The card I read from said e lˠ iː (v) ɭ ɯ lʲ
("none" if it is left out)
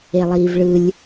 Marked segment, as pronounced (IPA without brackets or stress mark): v